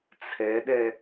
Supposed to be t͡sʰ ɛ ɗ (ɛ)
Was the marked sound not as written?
no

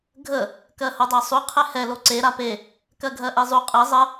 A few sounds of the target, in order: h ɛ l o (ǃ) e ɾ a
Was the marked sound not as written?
yes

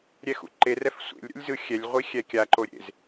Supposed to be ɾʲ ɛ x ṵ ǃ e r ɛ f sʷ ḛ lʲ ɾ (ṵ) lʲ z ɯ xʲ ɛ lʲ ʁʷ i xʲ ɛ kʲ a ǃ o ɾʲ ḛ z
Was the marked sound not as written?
no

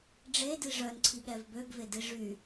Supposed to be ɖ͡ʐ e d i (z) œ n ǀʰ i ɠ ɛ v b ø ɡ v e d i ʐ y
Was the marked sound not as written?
yes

